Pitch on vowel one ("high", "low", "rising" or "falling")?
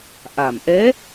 low